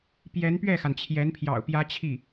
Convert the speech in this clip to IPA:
p j ɛ˧˥ n p ɥ ɛ˥˩ x a˩ n t͡ɕʰ j ɛ˧˥ n pʰ j ɑ̰˨˩ ʊ̯ p j ä˥ t͡ɕʰ i˥˩

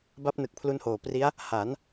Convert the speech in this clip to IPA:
b a˦˥ p̚ n ɯ˨˩ k̚ pʰ l u˧ n h oː˨˩ p r i˦˥ a̯ | h a˩˦ n

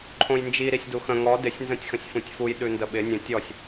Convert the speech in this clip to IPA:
ǃʰ õ j n d͡ʒ i ɾ i sʲ d u x ə̃ ŋ ɔ d ɪ sʲ n z ə̃ tʲ x ə̃ sʲ f ũ tʲ f u j ɗ ʉ n d ə ɓ ɪ nʲ ə̃ tʲ ɔ sʲ

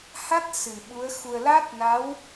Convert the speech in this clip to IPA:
h a˦˥ t̚ s ɨ˨˩ ɓ u˧˥ ə̯ x u˧ ə̯ l a˦˥ t̚ n a˧˥ w

